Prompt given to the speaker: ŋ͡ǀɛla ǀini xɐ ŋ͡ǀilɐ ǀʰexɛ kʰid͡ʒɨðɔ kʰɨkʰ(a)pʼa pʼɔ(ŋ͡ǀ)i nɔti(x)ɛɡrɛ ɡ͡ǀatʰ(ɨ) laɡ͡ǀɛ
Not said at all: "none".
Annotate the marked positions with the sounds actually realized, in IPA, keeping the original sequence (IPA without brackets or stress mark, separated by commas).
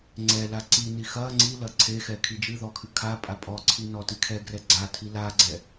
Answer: a, ǀʰ, kʰ, i